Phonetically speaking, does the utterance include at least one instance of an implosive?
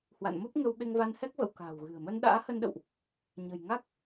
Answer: yes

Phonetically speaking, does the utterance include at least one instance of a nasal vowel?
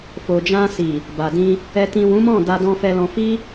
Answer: yes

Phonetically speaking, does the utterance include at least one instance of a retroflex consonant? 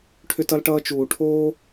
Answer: yes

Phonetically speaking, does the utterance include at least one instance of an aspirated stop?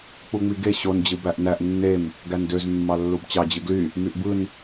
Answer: no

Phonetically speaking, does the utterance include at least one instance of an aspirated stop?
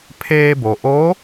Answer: yes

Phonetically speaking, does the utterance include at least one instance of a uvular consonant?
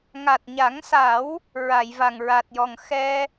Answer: no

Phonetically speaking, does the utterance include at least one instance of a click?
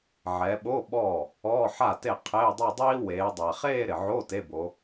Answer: no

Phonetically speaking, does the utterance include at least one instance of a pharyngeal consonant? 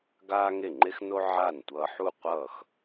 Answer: yes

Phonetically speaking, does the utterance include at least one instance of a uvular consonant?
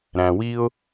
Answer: no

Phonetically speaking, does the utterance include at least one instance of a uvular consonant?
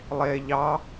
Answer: no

